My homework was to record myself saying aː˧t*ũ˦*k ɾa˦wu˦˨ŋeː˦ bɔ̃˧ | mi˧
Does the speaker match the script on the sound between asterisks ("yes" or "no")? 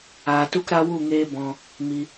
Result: no